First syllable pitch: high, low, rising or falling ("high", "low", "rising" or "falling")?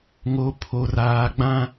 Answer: low